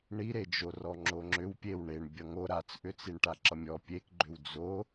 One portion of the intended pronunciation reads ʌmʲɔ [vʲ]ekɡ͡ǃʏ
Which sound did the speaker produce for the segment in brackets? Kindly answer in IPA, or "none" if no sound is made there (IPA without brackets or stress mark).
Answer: pʲ